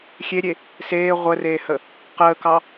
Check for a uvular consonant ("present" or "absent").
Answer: present